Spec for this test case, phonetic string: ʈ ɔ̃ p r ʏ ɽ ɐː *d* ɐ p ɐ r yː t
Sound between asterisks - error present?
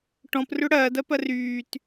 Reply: no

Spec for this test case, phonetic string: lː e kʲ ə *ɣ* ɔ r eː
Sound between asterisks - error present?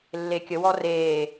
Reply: yes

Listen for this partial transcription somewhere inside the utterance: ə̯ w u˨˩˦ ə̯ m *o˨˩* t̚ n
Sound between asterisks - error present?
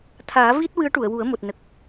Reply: no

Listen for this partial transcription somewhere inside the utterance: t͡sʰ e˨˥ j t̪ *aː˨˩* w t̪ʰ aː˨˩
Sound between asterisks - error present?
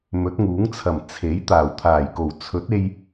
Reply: no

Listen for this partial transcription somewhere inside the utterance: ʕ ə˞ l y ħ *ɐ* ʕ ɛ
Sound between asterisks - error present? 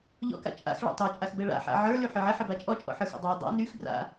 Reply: yes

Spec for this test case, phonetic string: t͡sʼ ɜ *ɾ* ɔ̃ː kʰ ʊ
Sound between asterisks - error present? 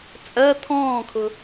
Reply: yes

